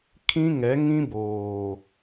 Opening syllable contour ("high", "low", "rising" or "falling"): high